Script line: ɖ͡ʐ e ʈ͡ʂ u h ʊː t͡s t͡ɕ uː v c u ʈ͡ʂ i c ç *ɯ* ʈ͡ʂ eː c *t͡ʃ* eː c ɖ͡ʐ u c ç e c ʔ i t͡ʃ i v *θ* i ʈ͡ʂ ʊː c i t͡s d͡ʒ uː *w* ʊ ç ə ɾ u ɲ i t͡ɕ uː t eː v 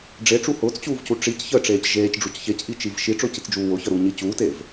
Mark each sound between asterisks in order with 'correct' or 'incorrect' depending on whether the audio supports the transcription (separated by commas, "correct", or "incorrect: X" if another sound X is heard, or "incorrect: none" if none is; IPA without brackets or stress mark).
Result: incorrect: ə, incorrect: ʒ, incorrect: ʃ, correct